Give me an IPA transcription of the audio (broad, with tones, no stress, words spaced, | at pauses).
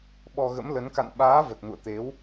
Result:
ɓɔ˧ɣə̰˧˥mlə˨˦n ka̰˧˨nɓaː˨˦ və˨˩t̚nṵ˧˨ə̯ t̪e˨˦w